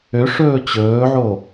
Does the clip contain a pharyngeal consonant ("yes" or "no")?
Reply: yes